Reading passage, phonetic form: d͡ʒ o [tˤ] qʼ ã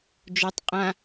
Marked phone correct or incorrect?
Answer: correct